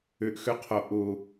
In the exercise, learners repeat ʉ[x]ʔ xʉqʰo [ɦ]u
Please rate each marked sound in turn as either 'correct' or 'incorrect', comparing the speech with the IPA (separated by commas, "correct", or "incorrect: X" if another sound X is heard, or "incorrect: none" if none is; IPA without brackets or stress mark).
incorrect: none, incorrect: ʔ